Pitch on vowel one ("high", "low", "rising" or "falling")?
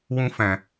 high